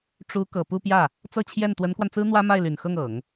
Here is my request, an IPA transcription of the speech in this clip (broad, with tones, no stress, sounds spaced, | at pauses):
ʈ͡ʂ u˧˥ k ɤ˨˩ p u˥˧ p j ä˥˩ | t͡s ɤ˥˧ t͡ɕʰ j ɛ˥˩ n t̪ w ə˧˥ n k w a˧ n t͡s ɹ̩˥ n̪ w ä˥ m a˥˩ ɪ̯ l y˨˩ n x ɤ˥˩ ŋ ɤ˨˩˦ ŋ